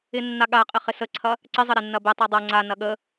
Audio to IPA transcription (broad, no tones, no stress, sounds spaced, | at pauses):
ɪ nː a ɠ a qʼ ɪ χ ɪ s ə ǀʰ ɐ | ǀ ɪ zˤ ə ɾ e nː ɐ b e tˤ a dˤ ɐ ŋ͡ǀ a n ɐ ɠ ə